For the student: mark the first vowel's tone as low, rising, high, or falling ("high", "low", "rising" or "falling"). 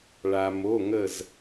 low